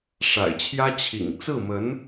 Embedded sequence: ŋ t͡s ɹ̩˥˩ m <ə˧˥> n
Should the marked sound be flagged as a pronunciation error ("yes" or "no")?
no